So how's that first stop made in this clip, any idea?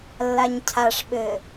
aspirated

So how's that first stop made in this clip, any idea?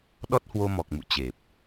implosive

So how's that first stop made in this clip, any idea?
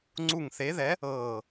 click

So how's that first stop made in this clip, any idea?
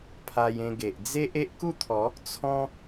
aspirated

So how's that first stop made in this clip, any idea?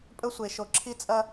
ejective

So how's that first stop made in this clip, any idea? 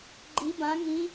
click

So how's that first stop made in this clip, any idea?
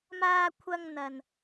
aspirated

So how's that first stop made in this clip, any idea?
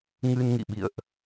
implosive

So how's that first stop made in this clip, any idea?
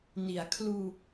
aspirated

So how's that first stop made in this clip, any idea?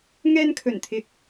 aspirated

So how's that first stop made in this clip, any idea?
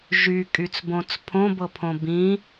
ejective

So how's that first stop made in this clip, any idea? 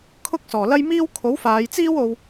aspirated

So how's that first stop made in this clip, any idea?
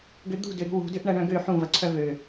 plain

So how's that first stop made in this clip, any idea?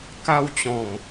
plain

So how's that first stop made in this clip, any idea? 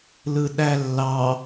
implosive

